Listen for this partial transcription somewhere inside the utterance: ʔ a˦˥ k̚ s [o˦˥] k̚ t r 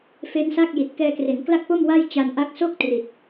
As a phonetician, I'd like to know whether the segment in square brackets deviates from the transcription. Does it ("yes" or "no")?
yes